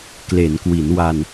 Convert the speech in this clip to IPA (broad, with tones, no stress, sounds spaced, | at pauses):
k l e˩˦ n k w i˩˦ n w a˧ n